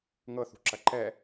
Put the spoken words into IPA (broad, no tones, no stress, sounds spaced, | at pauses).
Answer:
ŋ ɤ θ ṳ ǁ ɐ ǃ ɛ